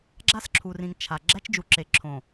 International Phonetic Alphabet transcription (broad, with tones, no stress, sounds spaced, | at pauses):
ɡ͡ǁ a˦ s ǁʰ u˨ r ĩ˨ ŋ t͡ʃʰ a˨ ɡ͡ǁ æ˦ t͡ʃ d͡ʒ u˨ ǁ e˨ ǁʰ õ˨